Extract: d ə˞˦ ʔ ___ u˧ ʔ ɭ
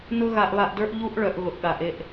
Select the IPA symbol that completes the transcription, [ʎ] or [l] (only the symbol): ʎ